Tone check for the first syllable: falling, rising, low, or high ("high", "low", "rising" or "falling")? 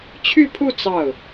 falling